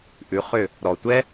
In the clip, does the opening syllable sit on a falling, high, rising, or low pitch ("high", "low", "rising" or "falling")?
rising